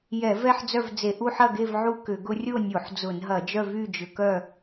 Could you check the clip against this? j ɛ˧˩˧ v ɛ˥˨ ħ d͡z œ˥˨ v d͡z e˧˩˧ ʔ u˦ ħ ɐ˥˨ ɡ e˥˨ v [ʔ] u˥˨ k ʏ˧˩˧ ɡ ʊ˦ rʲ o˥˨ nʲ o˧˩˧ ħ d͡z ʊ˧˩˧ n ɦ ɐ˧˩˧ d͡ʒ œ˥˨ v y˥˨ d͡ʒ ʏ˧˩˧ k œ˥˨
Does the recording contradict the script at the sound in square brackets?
yes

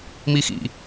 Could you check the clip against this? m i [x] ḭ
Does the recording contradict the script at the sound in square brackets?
no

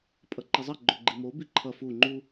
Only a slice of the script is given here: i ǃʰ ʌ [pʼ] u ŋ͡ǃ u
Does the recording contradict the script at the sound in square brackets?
yes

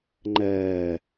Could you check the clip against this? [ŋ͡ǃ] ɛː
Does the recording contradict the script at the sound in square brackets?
no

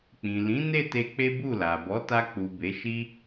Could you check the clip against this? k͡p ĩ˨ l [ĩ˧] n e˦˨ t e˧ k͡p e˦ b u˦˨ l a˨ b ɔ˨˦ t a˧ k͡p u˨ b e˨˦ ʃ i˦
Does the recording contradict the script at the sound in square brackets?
yes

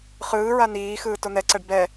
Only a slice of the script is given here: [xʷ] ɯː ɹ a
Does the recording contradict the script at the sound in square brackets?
yes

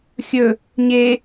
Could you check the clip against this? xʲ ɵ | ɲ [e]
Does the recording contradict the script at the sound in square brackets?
no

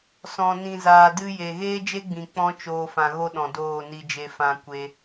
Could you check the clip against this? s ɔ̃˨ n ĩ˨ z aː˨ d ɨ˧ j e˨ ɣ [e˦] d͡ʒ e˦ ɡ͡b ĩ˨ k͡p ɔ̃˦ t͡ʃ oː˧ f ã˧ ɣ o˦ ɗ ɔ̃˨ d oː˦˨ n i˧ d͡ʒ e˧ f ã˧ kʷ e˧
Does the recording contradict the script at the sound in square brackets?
yes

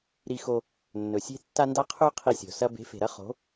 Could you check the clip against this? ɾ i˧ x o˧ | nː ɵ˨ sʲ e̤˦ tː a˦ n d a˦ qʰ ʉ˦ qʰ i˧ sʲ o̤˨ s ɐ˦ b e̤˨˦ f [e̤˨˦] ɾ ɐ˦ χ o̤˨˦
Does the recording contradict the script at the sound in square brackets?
yes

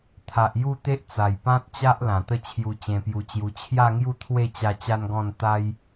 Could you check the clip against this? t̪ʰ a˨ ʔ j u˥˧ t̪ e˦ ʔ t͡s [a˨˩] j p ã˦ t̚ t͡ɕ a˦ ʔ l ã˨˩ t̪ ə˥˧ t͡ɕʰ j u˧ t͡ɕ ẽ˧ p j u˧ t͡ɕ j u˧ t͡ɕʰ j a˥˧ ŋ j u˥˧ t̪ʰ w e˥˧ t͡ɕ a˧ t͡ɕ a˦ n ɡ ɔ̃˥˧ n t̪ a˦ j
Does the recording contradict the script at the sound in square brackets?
no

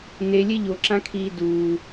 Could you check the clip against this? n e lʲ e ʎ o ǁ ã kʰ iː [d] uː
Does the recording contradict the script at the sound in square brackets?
no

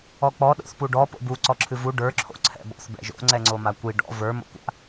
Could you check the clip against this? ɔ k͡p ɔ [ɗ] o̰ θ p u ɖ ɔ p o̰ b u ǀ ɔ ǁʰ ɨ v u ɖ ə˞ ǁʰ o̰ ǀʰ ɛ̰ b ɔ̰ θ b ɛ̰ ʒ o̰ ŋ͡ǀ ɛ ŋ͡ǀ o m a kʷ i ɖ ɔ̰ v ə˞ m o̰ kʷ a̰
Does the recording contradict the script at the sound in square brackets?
no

